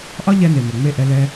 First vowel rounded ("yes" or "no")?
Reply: yes